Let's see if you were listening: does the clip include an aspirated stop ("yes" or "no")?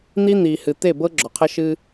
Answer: yes